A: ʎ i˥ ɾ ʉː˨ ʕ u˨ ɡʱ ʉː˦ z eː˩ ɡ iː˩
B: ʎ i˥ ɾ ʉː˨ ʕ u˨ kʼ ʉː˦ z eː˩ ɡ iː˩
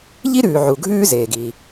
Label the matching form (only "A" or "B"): A